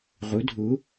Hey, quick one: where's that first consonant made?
uvula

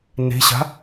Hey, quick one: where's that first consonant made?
tongue tip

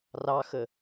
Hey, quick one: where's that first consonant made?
tongue tip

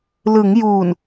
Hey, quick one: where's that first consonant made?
tongue tip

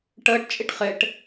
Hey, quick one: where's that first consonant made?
retroflex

